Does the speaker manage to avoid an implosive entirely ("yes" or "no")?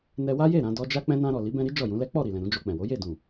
yes